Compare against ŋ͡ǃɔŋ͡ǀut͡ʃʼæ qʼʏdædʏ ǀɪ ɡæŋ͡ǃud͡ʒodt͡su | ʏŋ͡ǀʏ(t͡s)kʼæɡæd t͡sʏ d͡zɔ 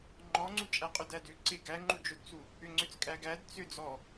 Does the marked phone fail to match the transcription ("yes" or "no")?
no